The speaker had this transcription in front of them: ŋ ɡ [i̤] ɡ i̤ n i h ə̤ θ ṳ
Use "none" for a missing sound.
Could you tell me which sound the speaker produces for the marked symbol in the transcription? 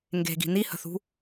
e̤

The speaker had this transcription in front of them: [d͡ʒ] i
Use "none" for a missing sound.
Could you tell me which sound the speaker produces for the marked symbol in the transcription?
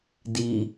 d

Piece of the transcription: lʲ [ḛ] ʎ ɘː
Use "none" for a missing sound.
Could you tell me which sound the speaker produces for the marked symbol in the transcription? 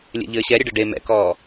ḛ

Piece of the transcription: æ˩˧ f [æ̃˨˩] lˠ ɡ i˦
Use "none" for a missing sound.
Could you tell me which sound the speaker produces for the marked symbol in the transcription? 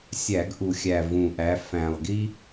æ̃˨˩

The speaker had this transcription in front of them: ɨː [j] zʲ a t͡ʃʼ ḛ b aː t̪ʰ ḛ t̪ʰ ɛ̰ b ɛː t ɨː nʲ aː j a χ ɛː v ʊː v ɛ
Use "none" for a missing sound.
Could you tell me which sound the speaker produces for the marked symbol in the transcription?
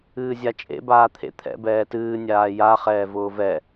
none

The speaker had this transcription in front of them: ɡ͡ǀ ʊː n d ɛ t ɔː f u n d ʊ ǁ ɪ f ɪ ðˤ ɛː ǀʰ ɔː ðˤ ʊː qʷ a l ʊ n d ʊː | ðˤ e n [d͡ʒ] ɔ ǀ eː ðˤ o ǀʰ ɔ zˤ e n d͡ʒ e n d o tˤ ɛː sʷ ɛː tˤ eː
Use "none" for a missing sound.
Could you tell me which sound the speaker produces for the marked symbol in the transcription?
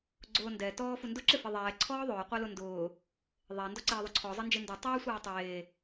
d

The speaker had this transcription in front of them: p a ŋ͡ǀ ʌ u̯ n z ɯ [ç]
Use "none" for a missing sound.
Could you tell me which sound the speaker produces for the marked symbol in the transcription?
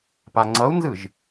ʒ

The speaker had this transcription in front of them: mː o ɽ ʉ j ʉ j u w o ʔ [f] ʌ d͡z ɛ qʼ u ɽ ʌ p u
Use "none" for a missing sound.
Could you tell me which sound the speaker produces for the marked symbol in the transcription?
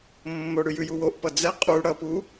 p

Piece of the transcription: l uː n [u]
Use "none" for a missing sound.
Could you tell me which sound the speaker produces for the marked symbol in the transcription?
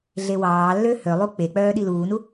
u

